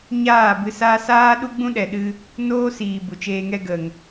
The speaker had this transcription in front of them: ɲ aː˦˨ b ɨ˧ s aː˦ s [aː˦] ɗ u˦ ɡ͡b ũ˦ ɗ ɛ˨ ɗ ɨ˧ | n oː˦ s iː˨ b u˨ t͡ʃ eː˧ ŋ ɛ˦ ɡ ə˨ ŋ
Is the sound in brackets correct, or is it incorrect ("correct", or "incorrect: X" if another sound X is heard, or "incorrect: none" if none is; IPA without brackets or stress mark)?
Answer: correct